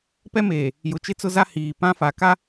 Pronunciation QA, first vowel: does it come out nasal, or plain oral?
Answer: oral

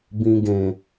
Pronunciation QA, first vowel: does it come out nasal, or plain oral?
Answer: nasal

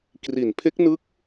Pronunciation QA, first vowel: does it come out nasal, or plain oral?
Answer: oral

